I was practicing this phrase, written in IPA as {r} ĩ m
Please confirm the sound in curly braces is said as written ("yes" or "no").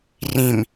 yes